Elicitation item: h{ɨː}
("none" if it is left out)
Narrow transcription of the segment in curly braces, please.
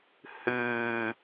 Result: ɨː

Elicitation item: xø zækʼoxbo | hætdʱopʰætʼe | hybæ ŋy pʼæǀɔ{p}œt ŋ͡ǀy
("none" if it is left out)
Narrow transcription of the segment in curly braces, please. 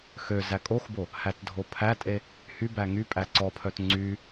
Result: pʰ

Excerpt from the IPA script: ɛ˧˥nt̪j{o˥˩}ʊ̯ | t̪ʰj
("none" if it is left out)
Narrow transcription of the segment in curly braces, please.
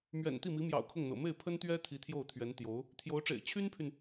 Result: o˧˥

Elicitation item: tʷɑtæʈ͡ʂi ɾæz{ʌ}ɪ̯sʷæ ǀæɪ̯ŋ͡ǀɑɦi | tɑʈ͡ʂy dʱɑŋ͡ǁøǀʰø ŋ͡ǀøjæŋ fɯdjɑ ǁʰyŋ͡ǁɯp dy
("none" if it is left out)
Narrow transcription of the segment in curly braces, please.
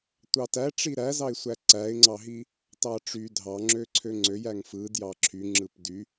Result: ɑ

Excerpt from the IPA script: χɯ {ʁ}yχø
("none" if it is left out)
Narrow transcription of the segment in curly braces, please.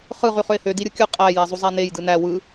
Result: ʁ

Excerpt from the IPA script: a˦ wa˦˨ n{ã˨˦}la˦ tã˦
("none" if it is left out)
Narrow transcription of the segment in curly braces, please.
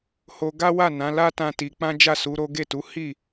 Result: ã˨˦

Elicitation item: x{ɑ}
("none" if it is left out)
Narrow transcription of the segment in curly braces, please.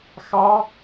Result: ɑ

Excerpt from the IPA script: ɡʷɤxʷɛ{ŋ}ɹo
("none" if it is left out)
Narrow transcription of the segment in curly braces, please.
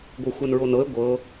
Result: n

